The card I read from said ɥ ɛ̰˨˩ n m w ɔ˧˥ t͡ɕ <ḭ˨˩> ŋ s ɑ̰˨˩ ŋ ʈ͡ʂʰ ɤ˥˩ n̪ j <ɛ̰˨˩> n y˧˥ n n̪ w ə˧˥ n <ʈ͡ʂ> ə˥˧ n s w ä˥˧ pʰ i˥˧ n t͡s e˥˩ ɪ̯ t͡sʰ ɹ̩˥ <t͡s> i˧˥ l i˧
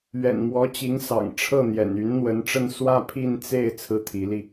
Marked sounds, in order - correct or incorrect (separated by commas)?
incorrect, correct, correct, incorrect